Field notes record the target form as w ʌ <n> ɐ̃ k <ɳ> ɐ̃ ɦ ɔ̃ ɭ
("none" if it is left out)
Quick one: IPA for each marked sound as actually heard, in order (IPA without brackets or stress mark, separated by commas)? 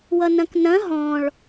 n, n